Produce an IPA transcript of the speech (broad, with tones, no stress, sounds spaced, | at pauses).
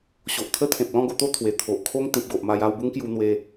ɕ o˨ ʔ t̪ʰ ə˦ t̪ʰ ẽ˨ p̚ l ɔ̃˥˧ ɡ o˧ t̪ o˥˧ t̪ʰ w e˨˩ t̪ʰ o˨ ʔ kʰ o˦ ŋ t̪ ĩ˨ p̚ ɡ o˨ ʔ m a˧ j a˥˧ w b u˦ ŋ k j u˧ n̪ w e˧